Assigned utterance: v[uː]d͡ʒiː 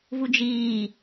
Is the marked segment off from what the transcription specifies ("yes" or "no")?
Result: yes